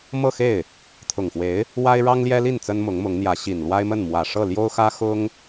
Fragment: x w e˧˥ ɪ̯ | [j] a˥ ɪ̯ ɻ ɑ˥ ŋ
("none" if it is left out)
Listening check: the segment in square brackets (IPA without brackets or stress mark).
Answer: w